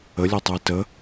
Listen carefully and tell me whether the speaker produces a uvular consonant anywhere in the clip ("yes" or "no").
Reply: no